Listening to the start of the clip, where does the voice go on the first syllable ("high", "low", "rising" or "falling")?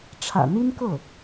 low